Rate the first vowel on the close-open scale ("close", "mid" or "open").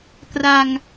open